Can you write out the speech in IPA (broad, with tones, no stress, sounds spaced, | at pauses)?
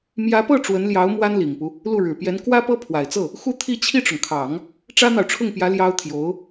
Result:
m j ä˧˥ p ɤ˥˩ ʈ͡ʂ w ə˧˥ n l j ɑ˧˥ ʊ̯ m w a˥ n l i˨˩ ŋ p u˦ | l u˥˩ ɻ ɻ̩˨˩ p j ɛ˧˥ n k w ä˥ p ɤ˥ pʰ w a˨˩ ɪ̯ t͡s ɤ˥˩ | x u˥˧ t̪ʰ i˥˧ t͡ɕʰ i˥˩ ʈ͡ʂ ʊ˩ ŋ kʰ ɑ˨˩˦ ŋ | ʈ͡ʂ ä˥ n̪ ɑ˨ ʊ̯ ʈ͡ʂʰ ʊ˥˩ ŋ p j ä˧˥ l j ɑ˥ ʊ̯ t̪ʰ j o˧˥ ʊ̯